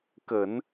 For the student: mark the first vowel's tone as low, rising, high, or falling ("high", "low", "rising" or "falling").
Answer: low